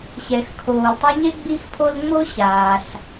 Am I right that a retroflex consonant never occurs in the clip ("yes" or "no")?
yes